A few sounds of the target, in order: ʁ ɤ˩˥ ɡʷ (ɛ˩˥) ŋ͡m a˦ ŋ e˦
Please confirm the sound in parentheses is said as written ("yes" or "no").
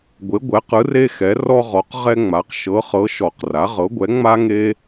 yes